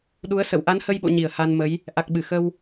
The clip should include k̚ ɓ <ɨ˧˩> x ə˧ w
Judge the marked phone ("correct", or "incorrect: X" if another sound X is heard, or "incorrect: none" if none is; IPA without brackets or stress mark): correct